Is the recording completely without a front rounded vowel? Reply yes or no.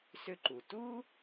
no